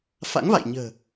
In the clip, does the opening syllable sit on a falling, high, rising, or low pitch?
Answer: rising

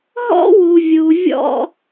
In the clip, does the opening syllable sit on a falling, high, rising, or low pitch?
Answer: high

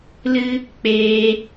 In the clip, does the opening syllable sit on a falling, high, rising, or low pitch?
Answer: high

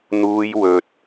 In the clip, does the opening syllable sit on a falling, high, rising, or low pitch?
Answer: high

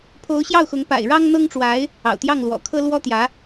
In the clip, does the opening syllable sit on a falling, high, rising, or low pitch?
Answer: rising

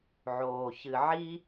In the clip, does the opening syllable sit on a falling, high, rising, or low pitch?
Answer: low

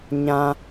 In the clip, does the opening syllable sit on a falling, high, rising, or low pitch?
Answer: low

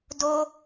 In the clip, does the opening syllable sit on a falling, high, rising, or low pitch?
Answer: high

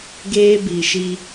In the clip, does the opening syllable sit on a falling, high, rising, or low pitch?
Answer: high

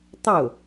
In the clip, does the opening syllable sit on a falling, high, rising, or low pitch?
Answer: falling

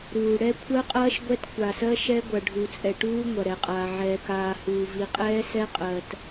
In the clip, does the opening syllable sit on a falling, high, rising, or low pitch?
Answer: low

